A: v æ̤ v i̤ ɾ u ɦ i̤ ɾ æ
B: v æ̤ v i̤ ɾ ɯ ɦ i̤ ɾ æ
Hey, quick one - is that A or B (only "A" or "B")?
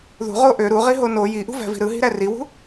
B